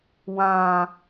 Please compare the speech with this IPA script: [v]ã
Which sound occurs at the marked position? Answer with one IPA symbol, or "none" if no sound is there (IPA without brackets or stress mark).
w